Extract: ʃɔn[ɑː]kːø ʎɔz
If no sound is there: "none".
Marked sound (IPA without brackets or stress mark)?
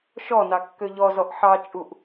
ɑ